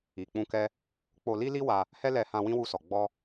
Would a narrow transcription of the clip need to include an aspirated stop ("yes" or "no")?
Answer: no